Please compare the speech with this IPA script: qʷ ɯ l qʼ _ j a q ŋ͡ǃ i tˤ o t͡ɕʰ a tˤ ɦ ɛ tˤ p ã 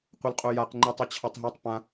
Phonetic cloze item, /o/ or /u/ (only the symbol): o